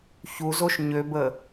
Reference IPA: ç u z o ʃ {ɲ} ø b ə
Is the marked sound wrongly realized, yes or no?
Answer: no